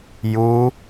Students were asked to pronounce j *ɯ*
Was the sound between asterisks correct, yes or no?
no